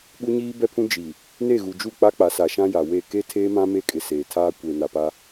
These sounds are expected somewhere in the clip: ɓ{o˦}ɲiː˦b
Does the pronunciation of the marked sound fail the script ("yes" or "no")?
yes